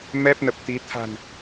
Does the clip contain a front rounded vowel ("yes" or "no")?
no